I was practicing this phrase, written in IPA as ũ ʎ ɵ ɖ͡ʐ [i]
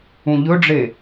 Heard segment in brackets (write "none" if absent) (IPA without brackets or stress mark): e